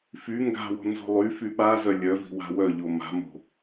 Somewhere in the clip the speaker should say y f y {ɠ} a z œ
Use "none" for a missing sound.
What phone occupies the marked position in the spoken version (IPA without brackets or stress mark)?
ɓ